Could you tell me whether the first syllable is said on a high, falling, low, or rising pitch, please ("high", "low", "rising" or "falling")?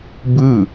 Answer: falling